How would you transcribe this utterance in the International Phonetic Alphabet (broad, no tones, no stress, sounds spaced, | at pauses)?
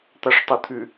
t̪ a ʂ tˤ o t̪ʰ ʉ